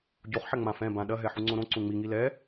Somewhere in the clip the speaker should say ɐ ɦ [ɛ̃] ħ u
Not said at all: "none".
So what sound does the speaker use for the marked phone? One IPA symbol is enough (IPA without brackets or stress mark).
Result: ɛ